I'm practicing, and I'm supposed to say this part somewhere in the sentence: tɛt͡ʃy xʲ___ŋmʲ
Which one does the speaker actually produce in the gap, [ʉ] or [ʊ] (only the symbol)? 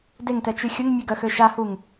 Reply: ʊ